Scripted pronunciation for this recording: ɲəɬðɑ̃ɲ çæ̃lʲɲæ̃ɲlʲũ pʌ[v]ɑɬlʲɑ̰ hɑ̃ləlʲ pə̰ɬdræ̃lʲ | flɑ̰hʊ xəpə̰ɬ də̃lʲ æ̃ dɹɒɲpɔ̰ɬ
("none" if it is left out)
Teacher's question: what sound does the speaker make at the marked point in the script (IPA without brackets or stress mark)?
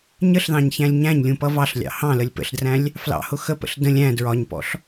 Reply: v